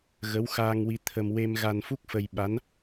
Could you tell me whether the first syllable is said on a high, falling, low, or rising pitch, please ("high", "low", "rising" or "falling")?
rising